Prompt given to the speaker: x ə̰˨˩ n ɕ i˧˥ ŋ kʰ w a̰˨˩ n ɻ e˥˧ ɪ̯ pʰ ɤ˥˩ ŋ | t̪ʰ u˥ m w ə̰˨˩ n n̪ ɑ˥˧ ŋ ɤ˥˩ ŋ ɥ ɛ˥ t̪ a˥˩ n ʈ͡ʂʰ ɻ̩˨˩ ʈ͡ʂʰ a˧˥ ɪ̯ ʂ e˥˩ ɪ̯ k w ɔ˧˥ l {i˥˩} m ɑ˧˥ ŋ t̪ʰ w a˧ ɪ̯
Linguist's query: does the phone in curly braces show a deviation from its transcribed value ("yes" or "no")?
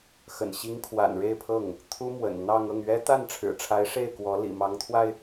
yes